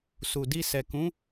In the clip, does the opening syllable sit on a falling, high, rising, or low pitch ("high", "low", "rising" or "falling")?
low